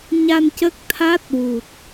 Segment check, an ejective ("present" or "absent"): absent